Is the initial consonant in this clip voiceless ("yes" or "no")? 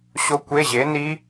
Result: yes